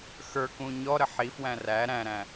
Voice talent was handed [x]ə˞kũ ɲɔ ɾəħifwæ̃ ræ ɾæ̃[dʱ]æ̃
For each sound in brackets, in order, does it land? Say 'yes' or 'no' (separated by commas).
yes, no